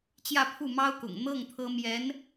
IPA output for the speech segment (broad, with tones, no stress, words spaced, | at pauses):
t͡ɕjä˥˧ pʰu˥˩mɑ˥ʊ̯kʊ̰˨˩ŋ n̪ɤ˥˩ŋ t̪ʰɤ˥ mjɛ˧˥n